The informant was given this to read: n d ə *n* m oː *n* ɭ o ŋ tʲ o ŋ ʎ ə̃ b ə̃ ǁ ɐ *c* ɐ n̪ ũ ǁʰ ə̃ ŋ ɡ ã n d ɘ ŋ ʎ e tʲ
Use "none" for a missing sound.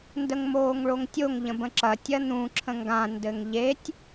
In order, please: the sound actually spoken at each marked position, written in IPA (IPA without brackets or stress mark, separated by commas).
ŋ, ŋ, tʲ